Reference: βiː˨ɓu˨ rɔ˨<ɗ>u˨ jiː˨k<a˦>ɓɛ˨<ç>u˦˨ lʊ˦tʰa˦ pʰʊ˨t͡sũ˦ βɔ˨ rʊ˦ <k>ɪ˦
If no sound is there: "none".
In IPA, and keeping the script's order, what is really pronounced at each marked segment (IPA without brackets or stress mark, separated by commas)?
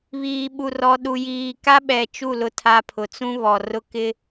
ɗ, a˦, t͡ʃ, k